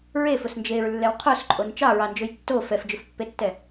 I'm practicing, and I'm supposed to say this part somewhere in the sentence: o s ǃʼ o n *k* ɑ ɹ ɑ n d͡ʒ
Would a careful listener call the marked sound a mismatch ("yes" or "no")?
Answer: yes